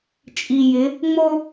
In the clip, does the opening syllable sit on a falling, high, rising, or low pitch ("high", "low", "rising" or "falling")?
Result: low